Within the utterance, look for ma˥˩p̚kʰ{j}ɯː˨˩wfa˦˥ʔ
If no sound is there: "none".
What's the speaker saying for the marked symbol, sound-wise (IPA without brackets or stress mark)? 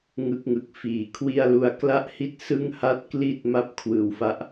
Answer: w